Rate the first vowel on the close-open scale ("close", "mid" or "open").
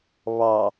open